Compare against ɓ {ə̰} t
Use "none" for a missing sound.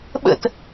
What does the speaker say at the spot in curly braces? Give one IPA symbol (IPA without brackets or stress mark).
ə̰